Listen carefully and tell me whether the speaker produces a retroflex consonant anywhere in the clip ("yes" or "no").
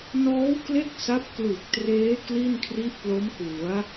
no